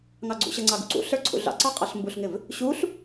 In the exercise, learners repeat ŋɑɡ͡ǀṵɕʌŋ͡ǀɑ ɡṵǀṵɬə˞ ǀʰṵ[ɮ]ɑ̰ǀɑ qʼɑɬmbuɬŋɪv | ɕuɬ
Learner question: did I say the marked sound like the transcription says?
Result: yes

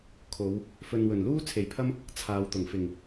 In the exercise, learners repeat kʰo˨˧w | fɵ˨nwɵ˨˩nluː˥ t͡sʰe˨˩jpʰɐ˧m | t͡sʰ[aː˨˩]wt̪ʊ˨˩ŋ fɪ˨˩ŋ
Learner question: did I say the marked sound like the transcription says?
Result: no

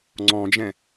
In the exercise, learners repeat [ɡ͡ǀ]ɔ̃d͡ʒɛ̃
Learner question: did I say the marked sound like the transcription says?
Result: no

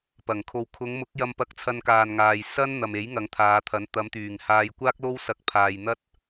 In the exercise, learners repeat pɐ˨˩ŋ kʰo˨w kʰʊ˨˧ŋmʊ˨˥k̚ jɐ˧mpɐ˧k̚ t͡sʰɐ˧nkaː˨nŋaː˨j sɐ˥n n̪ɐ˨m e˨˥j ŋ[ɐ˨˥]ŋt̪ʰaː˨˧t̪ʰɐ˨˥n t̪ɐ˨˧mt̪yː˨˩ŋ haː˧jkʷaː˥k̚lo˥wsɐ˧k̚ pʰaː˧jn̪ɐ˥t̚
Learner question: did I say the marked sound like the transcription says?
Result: yes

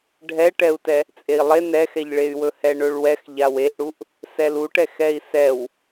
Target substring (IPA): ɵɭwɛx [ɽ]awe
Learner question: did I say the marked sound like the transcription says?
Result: no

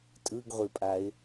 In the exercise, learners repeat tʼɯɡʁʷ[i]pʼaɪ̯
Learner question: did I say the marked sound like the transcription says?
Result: yes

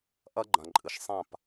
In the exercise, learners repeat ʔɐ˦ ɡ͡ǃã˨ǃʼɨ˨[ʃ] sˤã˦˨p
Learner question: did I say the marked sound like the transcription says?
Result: yes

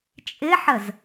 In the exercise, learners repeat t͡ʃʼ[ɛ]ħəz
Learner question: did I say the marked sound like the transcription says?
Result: no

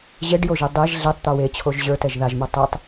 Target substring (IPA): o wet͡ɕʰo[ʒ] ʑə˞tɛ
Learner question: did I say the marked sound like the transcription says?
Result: yes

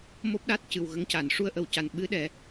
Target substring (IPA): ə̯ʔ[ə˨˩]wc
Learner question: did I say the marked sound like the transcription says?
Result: yes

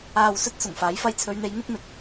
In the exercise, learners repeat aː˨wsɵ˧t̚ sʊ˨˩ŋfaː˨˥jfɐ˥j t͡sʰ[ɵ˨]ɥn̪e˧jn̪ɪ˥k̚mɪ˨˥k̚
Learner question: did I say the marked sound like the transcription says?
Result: no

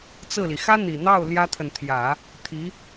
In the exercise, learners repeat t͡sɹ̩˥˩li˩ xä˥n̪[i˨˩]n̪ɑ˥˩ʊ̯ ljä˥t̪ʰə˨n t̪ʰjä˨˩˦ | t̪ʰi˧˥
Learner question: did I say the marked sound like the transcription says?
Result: yes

